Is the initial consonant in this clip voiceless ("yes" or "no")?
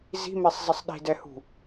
no